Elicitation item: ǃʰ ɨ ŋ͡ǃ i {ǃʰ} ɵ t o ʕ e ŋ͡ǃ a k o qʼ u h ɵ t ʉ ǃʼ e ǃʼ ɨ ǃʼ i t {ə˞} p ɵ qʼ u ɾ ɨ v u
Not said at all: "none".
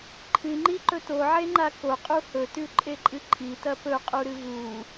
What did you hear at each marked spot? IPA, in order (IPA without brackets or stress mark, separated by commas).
ǃ, ɐ